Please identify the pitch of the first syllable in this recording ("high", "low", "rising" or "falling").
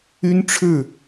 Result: high